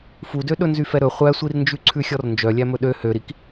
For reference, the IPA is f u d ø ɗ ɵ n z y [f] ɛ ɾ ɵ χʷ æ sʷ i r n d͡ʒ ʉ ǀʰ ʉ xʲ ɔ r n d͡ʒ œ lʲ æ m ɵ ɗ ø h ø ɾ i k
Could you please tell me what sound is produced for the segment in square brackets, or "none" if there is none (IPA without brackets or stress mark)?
f